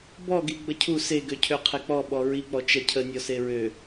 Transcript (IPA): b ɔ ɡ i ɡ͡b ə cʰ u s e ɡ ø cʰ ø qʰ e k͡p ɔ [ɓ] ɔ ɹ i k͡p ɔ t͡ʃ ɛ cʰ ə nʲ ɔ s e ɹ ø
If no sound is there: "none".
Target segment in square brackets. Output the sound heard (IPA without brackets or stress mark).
ɓ